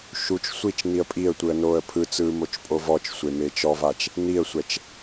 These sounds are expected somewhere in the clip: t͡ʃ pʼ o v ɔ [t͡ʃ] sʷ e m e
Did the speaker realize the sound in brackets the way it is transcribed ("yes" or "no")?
yes